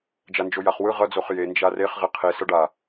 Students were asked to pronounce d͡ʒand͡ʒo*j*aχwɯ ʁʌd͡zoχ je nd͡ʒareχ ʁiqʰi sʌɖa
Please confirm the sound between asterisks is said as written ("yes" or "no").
yes